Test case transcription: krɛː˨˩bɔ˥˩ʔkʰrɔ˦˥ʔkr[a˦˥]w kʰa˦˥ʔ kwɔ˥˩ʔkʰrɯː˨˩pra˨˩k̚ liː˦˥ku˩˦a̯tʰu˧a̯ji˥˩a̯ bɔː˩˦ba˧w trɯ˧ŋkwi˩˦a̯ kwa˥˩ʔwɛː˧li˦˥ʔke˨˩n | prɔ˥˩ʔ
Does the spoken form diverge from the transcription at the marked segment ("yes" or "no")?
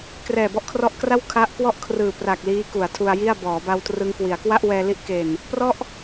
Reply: yes